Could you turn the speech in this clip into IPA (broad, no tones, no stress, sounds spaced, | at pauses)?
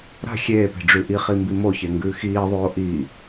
ɾ a̤ xʲ eː p e̤ ɖ͡ʐ ʉ ʔ i χ i m b i m o ç e ŋ ɡ ʉː x iː ðˤ oː ʔ iː